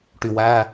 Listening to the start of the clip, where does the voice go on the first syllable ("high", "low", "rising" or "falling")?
low